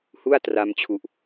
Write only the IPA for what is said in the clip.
h u˥˩ a̯ t r a˧ m t͡ɕʰ u˨˩ ʔ

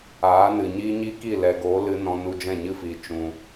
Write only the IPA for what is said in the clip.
aː˨˦ n ɨ˨ ɲ iː˦ ɲ i˦ k i˦˨ l ɛ˨ ɡ oː˨˦ l ɨ˦ n ɔ̃˧ n u˧ d͡ʒ ɛ̃˦˨ ɲ ɨ˦ f iː˨ t͡ʃ ũ˨

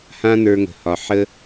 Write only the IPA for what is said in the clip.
h ã˦ n ə˞˧ ŋ ə̤˨ h ɒ˨ ħ ə˦

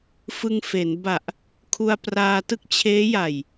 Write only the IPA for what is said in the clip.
f ɯ˧ ŋ f e˩˦ n b a˨˩ ʔ | kʰ u˧ a̯ p r aː˧ t ɯ˥˩ k̚ t͡ɕʰ eː˦˥ j a˨˩ j

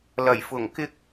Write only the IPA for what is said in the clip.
l ɐ˨˩ j f ʊ˨˩ ŋ k ɪ˥ k̚

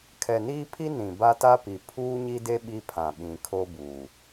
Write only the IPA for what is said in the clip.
kʰ ɛ˨ n iː˦ pʰ i˦ n ĩ˨ b a˦ t a˦ p i˨ pʰ uː˦ ɲ i˦ d e˦ ɓ i˦ pʰ ã˨ ɓ ĩ˨ kʰ o˦ b uː˨

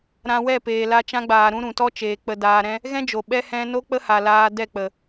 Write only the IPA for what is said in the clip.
ɾ ã˧ w ɛ˦˨ p eː˨ l a˧ t͡ʃ ã˧ ɡ͡b aː˨ ɾ ũ˧ ɾ ũ˨ t ɔ˦ t͡ʃ eː˨ k͡p ə˨ d aː˨ ɾ ɛ̃˧ | ɣ ɛ̃˦ d͡ʒ o˨ ɓ ɛ˧ h ɛ̃˧ n o˦ k͡p ə˦ h a˨ l aː˧ d ɛ˦˨ k͡p ə˨

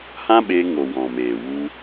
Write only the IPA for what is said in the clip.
h ã˦ ɓ eː˧ ŋ o˨ w ɔ̃˨ m eː˨ w u˧

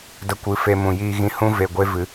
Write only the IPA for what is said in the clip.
d ə˧ kʷ ɨ˨˦ f e˧ m ũ˨ j iː˧ ɣ ĩ˧ h ũ˦ v e˨ ɡʷ e˦ v ɨ˨˦

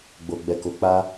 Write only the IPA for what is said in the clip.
ɡ͡b o˨ ɡ͡b ɛ˨ k o˨ k͡p a˧

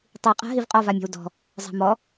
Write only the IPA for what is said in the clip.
tˤ i qʼ a̤ ɦ i v qʼ ɔ v a mʲ ɔ̤ w d ɔ̤ | zˤ a̤ m ɔ

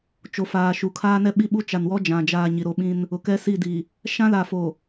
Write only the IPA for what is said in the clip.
t͡ʃ o˨ f aː˨ ʃ u˨ kʰ aː˦ n ɛ˦ ɓ i˦ ɓ u˦ t͡ʃ a˨ n w ɔ˦ d͡ʒ ã˨ d͡ʒ aː˨ ɲ i˨ ɾ o˦ ɓ ĩ˦ n | ʊ˨ k ɛ˦ s i˦˨ d iː˨ | ʃ ã˦ l a˨ f o˨

